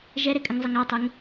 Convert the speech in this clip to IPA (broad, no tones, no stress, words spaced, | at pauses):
ʒɛɾekʼəŋzˤɘŋ atˤɛŋ